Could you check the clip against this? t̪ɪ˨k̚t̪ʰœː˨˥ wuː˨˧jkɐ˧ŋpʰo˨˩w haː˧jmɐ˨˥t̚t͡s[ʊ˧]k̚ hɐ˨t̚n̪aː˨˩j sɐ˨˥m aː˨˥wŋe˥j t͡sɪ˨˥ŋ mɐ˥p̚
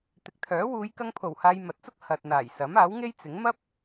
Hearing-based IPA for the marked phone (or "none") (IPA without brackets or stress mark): ʊ˥